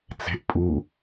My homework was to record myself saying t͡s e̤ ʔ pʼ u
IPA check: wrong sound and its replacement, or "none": none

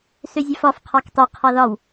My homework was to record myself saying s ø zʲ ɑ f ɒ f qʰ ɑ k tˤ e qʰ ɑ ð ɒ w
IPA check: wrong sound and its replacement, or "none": none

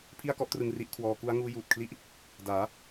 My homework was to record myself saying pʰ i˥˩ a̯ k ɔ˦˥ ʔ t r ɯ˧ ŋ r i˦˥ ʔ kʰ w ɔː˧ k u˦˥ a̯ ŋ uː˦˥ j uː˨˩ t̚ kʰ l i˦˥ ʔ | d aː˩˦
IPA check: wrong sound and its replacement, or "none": none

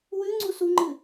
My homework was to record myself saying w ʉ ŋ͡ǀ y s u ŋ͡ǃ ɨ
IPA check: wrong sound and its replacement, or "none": y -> u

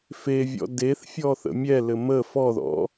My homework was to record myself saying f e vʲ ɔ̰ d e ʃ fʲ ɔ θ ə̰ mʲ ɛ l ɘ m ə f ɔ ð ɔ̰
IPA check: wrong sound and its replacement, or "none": ʃ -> θ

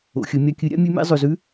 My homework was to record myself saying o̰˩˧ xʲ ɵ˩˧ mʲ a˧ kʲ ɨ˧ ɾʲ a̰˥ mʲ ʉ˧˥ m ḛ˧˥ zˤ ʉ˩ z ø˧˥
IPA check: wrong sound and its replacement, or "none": ø˧˥ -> ʉ˧˥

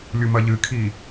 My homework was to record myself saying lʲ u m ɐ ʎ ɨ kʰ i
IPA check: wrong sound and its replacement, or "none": none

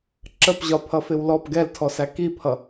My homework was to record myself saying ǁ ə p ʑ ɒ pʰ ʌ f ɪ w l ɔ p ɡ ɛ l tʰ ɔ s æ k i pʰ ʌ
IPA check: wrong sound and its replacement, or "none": none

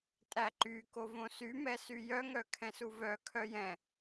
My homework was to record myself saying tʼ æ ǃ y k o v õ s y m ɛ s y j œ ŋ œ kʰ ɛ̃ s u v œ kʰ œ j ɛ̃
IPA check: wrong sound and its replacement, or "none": none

